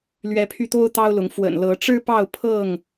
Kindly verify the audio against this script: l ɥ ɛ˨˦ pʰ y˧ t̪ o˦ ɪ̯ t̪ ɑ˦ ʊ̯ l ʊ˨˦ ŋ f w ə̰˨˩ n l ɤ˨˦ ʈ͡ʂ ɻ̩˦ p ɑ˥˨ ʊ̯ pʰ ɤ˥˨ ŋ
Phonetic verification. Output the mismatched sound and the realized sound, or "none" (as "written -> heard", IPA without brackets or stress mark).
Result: ɪ̯ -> ʊ̯